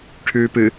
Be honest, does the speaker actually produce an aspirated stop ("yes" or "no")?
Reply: yes